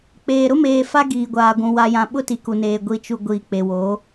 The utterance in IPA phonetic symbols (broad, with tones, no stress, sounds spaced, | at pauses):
k͡p eː˨ ɾ ʊ˦ m eː˨ f a˦ ɡ iː˨ ɡʷ aː˨ ɡʷ ũ˨ w a˨ j ã˨ ɓ ʊ˦ t i˨ k u˨ n eː˨ ɡʷ i˨ t͡ʃ u˨ ɡʷ iː˨ k͡p e˨ w oː˨˦